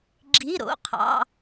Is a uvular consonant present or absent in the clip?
present